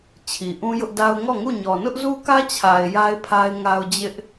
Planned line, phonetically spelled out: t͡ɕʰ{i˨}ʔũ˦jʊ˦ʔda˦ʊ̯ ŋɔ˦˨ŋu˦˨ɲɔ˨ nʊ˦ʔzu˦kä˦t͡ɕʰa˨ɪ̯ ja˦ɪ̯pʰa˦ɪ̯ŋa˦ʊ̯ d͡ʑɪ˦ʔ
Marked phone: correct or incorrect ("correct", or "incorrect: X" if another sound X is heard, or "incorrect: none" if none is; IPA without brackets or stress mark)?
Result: correct